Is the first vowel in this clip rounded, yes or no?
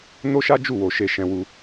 yes